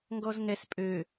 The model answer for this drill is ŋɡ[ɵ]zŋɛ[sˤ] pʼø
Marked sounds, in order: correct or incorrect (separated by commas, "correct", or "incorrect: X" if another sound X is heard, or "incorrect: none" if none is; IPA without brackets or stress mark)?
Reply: incorrect: ɔ, incorrect: s